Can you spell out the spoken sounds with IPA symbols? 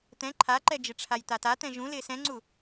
t̪ ɛ̃ ǃʰ a ǃ ɛ d͡ʒ ɪ ʈ͡ʂʰ a j t̪ a t a t̪ ɛ̃ ʒ ũ l ɪː s ɛ̃ ŋ͡ǀ u

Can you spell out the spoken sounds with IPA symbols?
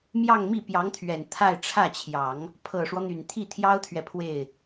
m j ɑ˥˧ ŋ m i˥˩ p j ɑ˧˥ ŋ t̪ʰ ɥ ɛ˨˩ n t̪ʰ a˥˧ ɪ̯ ʈ͡ʂʰ ä˥˩ t͡ɕʰ j ɑ˨˩˦ ŋ | pʰ ɤ˨˩ ʂ w ɔ˦ n̪ y˨˩ n t̪ʰ i˥˩ t̪ʰ j ɑ˥ ʊ̯ t̪ʰ ɥ ɛ˨ pʰ w e˥˩ ɪ̯

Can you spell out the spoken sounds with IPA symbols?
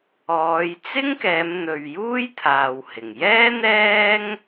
ɔː˨˧ j t͡s ɪ˥ ŋ k ɛː˨˧ m n̪ ɵ˨ ɥ j uː˥ j t̪ʰ aː˨ w h ɪ˨˩ ŋ j ɛː˥ n̪ ɛː˥ ŋ

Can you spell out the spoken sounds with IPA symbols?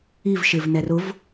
i v ʃ ɪ v n ɛ r ʊ v

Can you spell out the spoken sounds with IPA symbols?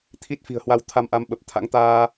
t̪ʰ i˦˥ t̚ f i̤˨˩ ə̯ h w a˧ w t̪ʰ a˧ m ʔ a˨˦ m ɓ ə˨˩ p̚ t̪ʰ a̰˧˥ ŋ t̪ aː˧

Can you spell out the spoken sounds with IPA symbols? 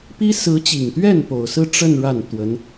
p i˥ s ɹ̩˧˥ t͡ɕ i˨˩ ŋ t̪ ɥ ɛ˥˩ n p o˨˩ ʊ̯ s ɹ̩˥˧ ʈ͡ʂ ə˥˧ n ɻ a˥˩ n t̪ w ə˧˥ n

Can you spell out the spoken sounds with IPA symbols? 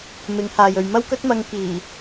m ɪ˨˥ ŋ h aː˨ j ɵ˨ ɥ m ɐ˥ w k ɵ˥ t̚ m ɐ˧ ŋ k iː˨˩

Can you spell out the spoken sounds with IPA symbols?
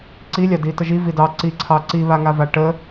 ǀ i lʲ ɑ d i t ə ʒ i v i d ɑ ǀ i ǀʰ ɑ ǀ i β a ŋ a v a ʈ ə

